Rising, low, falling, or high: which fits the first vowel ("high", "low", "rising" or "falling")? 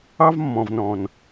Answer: high